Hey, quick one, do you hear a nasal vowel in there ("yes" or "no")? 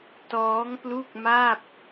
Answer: no